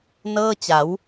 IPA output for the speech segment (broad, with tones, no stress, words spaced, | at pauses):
nɤː˥˩t͡ɕa˩˦w